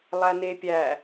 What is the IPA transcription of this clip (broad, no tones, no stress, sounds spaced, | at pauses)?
lˠ æ n e pʲ æ